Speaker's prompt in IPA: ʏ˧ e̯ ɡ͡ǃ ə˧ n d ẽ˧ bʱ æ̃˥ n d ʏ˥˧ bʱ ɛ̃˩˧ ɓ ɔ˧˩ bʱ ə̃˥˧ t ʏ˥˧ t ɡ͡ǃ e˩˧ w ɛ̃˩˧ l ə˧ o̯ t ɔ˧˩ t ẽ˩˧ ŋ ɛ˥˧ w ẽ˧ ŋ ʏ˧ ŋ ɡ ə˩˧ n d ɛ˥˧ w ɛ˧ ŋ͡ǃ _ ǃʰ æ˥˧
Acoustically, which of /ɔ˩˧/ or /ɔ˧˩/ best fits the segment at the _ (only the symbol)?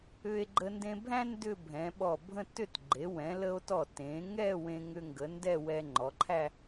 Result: ɔ˩˧